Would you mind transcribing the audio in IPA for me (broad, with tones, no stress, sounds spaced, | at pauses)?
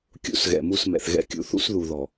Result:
kʲ ṵ˦ s ɣ ɛ̰˨ m u˦˨ s m ɛ̰˨ θ ɣ ɛ̰˦ kʲ ṵ˨˦ θ ṵ˦ s ð u˨ ð ɔ˨